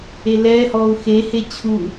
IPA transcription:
elɛːhɔːu̯ xehe t͡ɕʰu

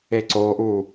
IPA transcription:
eǀoʔu

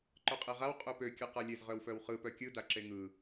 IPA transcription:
ǃœqʼeʁaw qʼøpø kʲɯqalʲez ʁœwfœwχɯ pœkʲɯ daǁeŋɯ

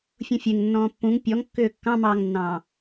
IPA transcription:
fʲũfʲeŋ nːɔ̃ːpːũŋ pʲɔŋkːʏː kːɑ̃mɑːŋnːɑ̃ː

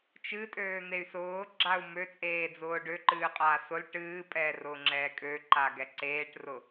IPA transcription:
t͡ʃɨtʼøːn̪ey̯ sʊːɡ͡ǁau̯ møt͡sʼeːd͡zʊː ɖøǃɨːqʼaː sʊl ʈɨːpʼɛːrʊːŋ͡ǁɛː kʼøǃaɡɛ ǀeːʈrʊ

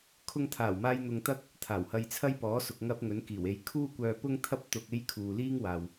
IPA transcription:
kʰʊ˧ŋt̪ʰaː˨˩wmaː˧j n̪ʊ˧ŋt̪ɐ˥k̚ | t̪ʰaː˨˩whɐ˧jt͡sʰɐ˥j pɔː˨˥sʊ˨k̚ ŋɐ˧p̚ ŋɵ˨˥nkiː˨˩we˧j kʰuː˥kʷœː˧ pʊ˥ŋt̪ʰɐ˥p̚ t̪ʊ˧k̚ e˥j kʰuː˨liː˥ŋ waː˨w

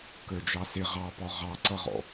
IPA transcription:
kə˞d͡ʒɑsɪ ʁɑpɔ ʁɑǀʌʁɔ̰

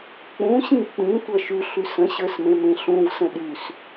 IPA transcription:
k͡pũɕĩ k͡pĩtʷʌ ʃʉɬʉ sə̃ɕə˞smẽmẽ ɬũvsə̃ ɗʉs

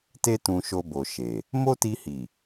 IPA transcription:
te˦ tũ˧ʃo˧bo˨ ʃe˨ | mo˦ti˧hi˨

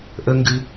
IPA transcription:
ʔə ŋɡɨ

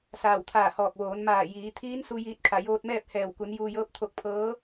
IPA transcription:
saː˧˩wt̪ʰaː˧˩hɔː˧˩k̚ ʋoː˩˧nmaː˧˩ jiː˩˧ t̪ʰiː˧˥nsu˧ jiː˧t̚kʰa˧˩joː˧t̚mɛː˥˨p̚ hɛː˧˩wku˩˧n juː˧jɤː˧˥p̚ t̪ʰo˧k̚pʰɤː˧˥

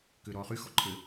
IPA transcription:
kʏːɾɔːχy xɔǃʰɘ

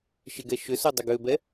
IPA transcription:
ʃɪɡɛ ʃʏsodˤʏ ɡøbɛ

